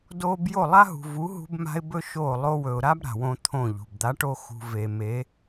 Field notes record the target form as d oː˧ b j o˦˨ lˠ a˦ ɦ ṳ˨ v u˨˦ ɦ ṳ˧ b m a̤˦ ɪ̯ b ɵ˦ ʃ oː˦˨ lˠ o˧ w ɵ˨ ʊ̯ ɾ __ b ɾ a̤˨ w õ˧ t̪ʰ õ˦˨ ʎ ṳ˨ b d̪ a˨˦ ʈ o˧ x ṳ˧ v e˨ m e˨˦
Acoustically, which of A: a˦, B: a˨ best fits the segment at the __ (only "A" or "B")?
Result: A